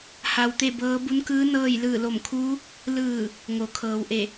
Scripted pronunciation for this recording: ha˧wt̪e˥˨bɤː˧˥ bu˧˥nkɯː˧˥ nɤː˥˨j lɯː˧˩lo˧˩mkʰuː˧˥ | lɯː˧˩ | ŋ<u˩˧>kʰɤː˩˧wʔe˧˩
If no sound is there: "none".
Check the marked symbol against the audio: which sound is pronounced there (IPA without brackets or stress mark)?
o˩˧